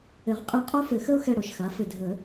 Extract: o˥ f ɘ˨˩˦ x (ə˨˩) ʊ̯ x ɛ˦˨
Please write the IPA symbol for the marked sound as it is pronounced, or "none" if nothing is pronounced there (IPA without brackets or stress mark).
ə˥